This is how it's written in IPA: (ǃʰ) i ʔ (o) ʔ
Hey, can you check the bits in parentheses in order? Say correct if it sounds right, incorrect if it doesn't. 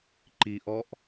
incorrect, incorrect

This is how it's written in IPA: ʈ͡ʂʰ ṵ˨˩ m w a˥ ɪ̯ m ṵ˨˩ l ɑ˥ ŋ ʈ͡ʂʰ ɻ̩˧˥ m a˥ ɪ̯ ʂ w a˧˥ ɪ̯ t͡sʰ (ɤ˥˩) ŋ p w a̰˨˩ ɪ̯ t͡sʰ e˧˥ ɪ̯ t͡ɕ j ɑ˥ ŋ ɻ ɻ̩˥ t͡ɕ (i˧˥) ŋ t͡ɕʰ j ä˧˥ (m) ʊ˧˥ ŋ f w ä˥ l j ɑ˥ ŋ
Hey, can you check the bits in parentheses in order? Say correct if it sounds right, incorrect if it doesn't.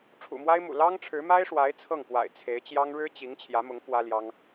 correct, correct, correct

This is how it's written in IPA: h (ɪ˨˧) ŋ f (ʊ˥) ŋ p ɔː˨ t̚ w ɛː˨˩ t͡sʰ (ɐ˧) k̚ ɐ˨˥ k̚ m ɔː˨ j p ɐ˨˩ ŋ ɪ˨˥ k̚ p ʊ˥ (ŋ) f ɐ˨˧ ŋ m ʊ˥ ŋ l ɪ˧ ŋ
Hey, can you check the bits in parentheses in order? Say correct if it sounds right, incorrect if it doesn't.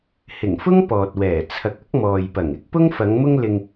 incorrect, correct, incorrect, correct

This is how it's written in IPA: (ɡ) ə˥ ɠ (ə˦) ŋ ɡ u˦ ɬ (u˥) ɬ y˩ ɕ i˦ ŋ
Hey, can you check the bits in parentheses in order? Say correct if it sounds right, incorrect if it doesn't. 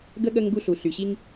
correct, correct, incorrect

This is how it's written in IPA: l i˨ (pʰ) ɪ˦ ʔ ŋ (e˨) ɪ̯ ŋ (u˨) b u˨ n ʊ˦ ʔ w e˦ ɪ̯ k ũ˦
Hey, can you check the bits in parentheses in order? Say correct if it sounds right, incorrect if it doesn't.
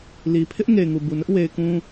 correct, correct, correct

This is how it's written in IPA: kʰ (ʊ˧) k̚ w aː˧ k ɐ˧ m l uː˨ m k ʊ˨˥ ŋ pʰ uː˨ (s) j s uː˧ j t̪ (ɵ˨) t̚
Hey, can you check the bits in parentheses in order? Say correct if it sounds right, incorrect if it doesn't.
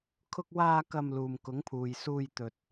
correct, incorrect, correct

